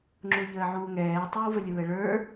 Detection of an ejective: absent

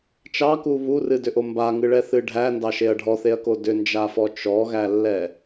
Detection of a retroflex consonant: present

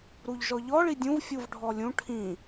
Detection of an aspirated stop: present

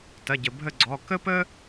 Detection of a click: present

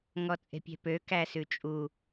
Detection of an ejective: present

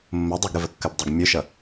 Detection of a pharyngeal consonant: absent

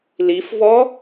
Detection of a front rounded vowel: absent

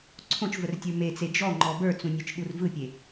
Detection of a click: present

